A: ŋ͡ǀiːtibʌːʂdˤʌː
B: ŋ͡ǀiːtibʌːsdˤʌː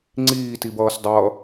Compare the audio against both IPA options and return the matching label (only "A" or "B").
B